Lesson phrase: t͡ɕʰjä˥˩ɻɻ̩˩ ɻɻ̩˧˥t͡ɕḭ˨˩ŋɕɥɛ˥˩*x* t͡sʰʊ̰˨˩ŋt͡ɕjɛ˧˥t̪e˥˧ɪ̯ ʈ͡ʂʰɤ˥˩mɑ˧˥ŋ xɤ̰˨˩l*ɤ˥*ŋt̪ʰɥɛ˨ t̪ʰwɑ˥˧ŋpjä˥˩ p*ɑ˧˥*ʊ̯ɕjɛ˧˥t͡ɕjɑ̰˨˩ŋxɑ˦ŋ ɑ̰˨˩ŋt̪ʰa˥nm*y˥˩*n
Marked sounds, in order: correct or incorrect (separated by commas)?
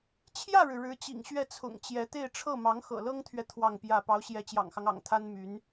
incorrect, correct, correct, incorrect